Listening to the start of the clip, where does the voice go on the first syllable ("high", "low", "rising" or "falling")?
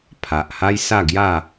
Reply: low